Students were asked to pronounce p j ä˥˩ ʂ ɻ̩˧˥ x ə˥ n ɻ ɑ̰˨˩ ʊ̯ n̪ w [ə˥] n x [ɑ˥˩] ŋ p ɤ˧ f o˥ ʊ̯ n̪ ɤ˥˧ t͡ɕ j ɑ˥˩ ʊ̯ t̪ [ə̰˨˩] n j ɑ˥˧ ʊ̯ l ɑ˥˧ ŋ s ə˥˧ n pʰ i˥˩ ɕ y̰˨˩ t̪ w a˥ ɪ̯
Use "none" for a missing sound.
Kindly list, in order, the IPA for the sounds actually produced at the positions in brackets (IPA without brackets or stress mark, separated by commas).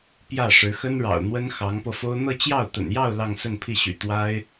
ə˥, ɑ˧˥, ə̰˨˩